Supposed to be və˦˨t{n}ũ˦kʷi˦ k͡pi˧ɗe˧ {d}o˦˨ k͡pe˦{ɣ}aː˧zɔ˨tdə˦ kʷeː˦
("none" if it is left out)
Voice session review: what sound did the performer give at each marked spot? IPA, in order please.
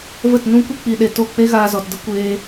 n, t, ɣ

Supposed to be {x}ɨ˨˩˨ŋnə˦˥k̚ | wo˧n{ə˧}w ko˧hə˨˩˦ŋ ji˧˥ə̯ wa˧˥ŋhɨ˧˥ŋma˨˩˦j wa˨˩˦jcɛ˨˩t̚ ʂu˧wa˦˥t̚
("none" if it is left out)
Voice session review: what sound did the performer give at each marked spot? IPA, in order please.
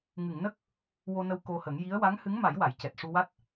ŋ, ə˧

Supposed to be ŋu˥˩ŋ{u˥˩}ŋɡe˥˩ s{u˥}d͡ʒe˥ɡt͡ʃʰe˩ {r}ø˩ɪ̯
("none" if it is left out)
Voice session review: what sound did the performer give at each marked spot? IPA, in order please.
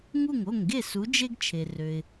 o˥˩, u˨˥, r

